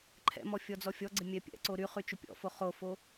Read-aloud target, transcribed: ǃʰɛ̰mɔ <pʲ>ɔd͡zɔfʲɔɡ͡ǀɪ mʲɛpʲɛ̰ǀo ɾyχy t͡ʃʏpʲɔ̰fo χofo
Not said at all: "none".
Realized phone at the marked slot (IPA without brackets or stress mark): fʲ